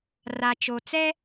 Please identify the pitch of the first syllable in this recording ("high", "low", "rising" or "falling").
low